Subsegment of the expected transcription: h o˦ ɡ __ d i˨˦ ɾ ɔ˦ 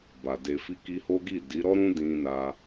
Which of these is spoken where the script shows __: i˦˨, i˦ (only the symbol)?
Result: i˦˨